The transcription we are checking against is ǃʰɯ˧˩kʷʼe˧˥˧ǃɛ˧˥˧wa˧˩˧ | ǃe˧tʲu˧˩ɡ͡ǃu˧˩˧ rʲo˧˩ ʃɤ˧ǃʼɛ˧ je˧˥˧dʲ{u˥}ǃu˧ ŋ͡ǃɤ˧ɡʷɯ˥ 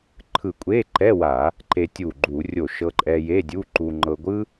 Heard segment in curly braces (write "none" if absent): u˧˥˧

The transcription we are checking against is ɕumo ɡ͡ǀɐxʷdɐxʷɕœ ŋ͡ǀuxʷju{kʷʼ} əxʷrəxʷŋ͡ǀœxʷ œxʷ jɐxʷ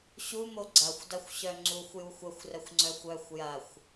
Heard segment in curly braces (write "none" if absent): xʷ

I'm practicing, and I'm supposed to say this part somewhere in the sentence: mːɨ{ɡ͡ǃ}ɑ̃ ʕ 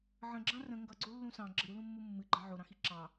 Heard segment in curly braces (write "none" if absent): ɡ͡ǃ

